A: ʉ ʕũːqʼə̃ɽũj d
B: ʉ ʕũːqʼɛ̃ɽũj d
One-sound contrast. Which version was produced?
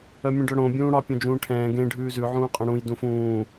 B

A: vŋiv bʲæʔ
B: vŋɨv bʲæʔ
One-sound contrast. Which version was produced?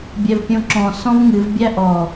B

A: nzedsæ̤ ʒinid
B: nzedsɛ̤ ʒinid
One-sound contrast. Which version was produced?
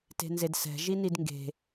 B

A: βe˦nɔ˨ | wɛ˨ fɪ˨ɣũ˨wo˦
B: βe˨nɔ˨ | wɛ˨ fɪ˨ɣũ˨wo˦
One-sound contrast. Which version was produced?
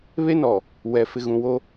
A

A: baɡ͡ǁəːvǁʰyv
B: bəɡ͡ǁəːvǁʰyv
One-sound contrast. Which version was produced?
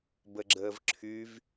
B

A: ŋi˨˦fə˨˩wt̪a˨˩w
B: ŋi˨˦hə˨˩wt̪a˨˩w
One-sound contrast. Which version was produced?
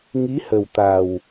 B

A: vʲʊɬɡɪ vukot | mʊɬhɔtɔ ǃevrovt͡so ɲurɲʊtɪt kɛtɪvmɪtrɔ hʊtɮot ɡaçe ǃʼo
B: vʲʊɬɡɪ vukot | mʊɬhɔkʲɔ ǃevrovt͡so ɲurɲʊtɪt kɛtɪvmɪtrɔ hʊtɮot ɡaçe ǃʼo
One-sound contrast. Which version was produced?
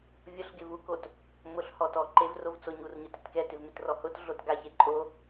A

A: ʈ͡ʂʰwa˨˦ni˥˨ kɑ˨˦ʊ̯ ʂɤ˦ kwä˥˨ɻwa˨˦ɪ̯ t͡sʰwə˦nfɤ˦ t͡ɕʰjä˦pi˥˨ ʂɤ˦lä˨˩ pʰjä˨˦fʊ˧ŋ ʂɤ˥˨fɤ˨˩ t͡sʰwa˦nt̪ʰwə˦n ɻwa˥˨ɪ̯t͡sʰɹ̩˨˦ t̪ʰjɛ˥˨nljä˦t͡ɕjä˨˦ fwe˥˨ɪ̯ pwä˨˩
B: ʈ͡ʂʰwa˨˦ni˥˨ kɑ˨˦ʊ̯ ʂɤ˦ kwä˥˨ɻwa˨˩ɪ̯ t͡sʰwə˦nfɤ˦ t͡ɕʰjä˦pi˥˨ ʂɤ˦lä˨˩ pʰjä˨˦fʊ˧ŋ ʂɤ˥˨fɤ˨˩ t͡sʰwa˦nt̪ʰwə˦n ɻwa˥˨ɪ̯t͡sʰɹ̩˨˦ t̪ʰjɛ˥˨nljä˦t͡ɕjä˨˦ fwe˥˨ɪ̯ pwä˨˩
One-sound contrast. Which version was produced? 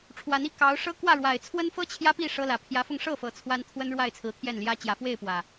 B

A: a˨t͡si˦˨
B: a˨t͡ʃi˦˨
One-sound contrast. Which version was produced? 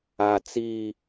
A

